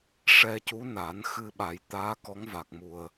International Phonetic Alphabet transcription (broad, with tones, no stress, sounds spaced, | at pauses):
ʂ ɛ˧ c u˧˥ n a˨˩˦ n x ɨ˧ ɓ a˨˩˦ j t̪ aː˧˥ k ɔ˧˥ ŋ v a˨˩ k̚ m u˨˩ ə̯